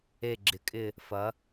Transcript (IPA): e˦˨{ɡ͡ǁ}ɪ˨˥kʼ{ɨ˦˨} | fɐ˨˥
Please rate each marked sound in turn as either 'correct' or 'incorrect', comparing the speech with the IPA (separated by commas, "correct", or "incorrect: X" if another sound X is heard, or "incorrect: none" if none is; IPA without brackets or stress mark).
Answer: correct, incorrect: ɪ˦˨